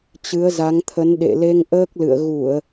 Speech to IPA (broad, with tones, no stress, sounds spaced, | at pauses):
t͡ɕ ɨ˨˦ ə̯ z a˨˦ ŋ t̪ʰ ə˨˦ n ɗ ḛ˧˨ l e˧ ŋ ʔ əː˦˥ k̚ l ɨ̰˧˨ ə̯ ɣ u˧˩˨ ə̯